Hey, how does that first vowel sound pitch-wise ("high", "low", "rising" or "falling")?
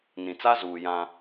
low